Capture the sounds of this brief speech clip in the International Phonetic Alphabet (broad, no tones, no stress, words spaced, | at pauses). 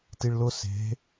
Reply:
tiɭlʊ se̤